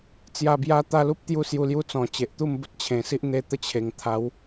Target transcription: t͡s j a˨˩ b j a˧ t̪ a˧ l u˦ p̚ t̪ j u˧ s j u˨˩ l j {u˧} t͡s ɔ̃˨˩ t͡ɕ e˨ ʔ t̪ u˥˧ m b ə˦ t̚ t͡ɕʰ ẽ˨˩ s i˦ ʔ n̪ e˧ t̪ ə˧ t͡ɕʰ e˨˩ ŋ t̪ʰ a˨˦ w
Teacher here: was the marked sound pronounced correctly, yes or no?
yes